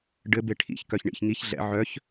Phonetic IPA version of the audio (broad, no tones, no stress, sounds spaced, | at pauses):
ɖ ɘ b e ʈʰ ḭ ç k œ ç ɳ ḭ ç ŋ i ç ɮ ɛ̰ ʕ œ ç